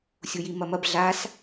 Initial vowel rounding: rounded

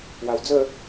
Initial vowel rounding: unrounded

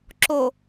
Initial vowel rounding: rounded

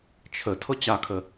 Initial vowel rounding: unrounded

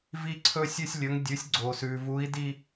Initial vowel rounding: unrounded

